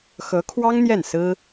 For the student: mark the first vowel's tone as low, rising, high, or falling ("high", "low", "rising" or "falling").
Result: rising